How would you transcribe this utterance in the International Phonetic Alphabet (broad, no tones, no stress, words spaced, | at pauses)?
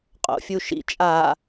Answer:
qʼo̰fʲuʃḭ t͡ʃʼa